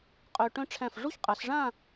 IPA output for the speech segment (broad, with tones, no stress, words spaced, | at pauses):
qʼœ˧ʈœ̃˥ ʈ͡ʂʰæ̃˧˩fʐu˥çqʼa˩˧sʐã˥˧